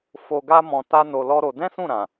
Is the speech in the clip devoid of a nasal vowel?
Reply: no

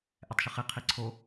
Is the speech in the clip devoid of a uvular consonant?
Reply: no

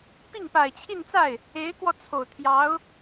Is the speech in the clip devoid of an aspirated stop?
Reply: no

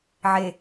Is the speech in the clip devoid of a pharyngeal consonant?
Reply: no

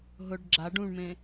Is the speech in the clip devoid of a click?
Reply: no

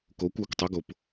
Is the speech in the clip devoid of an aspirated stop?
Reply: yes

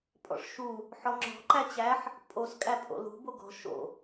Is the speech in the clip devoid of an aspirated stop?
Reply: yes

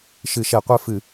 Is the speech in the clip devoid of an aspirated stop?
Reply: yes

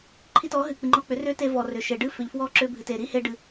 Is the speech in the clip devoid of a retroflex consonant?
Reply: no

